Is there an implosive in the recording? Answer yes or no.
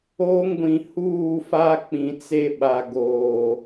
yes